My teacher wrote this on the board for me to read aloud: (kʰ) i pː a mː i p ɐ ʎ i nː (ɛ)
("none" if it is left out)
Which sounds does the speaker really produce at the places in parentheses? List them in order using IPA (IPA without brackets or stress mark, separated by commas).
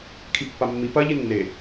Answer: kʰ, e